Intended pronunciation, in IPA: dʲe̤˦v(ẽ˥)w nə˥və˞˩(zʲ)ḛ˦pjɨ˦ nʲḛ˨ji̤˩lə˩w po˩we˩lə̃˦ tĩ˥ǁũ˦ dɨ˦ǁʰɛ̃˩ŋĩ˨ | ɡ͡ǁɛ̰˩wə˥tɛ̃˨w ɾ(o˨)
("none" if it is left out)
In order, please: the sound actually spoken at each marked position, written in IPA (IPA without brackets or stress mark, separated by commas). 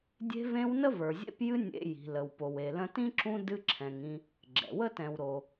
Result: ẽ˦, zʲ, o˩